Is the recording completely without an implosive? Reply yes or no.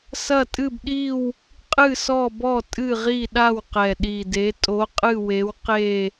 no